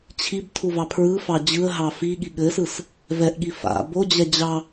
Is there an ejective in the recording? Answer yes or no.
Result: no